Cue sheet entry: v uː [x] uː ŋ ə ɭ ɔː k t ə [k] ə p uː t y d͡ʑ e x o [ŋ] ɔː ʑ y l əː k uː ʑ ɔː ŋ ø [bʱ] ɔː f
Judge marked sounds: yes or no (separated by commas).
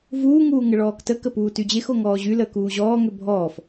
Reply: no, yes, yes, yes